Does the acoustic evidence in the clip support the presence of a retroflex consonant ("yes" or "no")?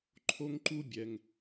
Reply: no